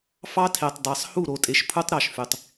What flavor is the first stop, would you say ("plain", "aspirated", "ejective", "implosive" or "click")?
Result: aspirated